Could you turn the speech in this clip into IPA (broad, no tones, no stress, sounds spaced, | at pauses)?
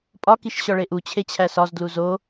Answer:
pʼ ɒ k i ʃ ɕ ɒ ɭ e ʔ u t͡ɕʰ e t͡ɕʰ æ s ɒ z d l u z o